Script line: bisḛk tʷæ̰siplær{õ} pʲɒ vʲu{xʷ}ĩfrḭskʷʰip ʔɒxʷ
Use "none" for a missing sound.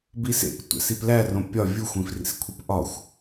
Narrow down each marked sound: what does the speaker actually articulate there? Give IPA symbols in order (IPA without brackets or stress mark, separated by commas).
õ, xʷ